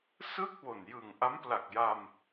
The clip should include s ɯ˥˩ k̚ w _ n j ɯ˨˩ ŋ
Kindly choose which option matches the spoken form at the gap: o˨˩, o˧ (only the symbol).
o˨˩